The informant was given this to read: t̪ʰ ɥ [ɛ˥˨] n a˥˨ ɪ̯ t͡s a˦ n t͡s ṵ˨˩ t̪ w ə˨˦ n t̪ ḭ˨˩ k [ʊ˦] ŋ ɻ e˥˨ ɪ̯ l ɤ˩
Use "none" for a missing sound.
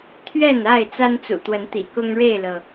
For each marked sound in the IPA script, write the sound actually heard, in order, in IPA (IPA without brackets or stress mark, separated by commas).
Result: ɛ˥˨, ʊ˦